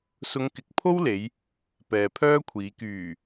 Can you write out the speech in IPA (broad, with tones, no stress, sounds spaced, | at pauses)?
s ʊ˧ ŋ k ɪ˨˥ k̚ pʰ o˥ w l e˨˧ j | p ɛː˨ pʰ œː˥ kʷʰ iː˨˧ k yː˨˩